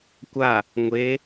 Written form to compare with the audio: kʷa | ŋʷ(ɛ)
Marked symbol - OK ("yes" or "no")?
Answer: no